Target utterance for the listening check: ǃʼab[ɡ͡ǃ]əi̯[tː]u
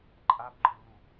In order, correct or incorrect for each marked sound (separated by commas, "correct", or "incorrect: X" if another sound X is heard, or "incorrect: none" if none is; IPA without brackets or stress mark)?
correct, incorrect: n